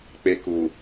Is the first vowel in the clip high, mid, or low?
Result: mid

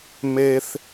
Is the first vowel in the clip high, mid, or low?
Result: mid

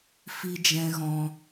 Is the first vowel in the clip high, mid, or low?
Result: high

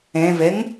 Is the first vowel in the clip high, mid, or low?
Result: mid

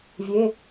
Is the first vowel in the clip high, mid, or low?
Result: mid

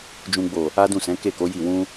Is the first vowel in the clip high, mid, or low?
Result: high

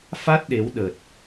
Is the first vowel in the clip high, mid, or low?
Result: low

